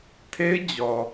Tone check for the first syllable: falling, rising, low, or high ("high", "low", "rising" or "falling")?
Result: high